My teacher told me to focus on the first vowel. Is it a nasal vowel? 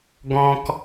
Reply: yes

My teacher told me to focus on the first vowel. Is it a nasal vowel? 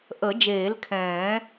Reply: no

